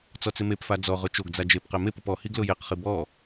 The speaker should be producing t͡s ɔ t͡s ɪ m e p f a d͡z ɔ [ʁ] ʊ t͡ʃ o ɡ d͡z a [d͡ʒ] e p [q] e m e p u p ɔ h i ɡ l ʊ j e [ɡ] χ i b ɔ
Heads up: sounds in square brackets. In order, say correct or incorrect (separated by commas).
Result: correct, correct, correct, incorrect